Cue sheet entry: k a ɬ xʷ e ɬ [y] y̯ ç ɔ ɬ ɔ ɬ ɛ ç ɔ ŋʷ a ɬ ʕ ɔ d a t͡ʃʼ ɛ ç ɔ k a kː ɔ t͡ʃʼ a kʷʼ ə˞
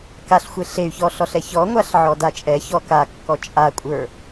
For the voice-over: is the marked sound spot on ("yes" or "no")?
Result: no